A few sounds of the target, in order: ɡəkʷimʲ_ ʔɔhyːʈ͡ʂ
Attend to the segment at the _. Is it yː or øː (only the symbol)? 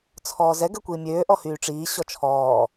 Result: øː